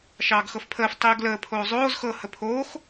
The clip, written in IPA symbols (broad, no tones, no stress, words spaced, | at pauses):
ʃɑːɡxɤfpʰəːf tˤiːɡləː pʰoːzˤoːz xɤ həpʰoːx